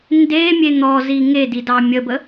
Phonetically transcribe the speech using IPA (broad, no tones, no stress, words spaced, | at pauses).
ndemʲe n̪ɔzi ŋedi dɑmʲəbə